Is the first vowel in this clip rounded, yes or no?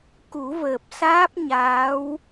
yes